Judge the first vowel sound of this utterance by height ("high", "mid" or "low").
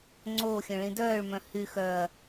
mid